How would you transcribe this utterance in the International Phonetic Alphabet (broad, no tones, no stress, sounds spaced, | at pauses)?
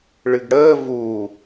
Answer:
ɭ ɨ ɡ ɽ əː v uː